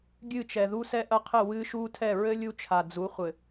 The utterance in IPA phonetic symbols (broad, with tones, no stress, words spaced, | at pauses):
ɡʲɨ˦˨t͡ʃɛ˨ ðu˦sɛ˦ʔɐ˦qʰɘ˦˨ wɨː˦ʃuː˦tʰɛ˦˨ ɹɘ˦ lʲu˦t͡ʃʰa˨d͡zu˨˦χʷɘ˨